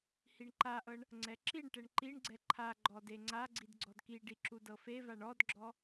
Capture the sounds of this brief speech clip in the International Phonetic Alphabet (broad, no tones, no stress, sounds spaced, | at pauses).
h i ɳ ǃ a ʔ ɤ ɳ | ŋ͡ǀ ɛ ǁ i ɳ ʈ ɛ ɳ ǃ i ɳ ɡ͡ǀ ɛ ǃʰ a ɡ͡ǃ ɔ d e ŋ͡ǀ a ɡ͡ǀ i d ɡ͡ǀ ɔ d k i ɖ i ǁ u d ɤ f e v a ɳ ɔ d ɡ͡ǁ ɔ